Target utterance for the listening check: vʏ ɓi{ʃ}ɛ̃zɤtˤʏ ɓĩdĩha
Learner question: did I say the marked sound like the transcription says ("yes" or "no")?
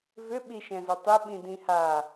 yes